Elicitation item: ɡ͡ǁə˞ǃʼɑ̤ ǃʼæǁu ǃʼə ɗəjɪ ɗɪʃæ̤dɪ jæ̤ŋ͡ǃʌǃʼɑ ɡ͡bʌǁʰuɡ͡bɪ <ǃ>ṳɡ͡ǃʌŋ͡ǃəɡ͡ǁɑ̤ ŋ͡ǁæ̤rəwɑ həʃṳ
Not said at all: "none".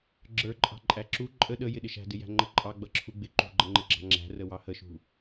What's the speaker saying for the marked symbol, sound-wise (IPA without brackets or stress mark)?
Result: ǃ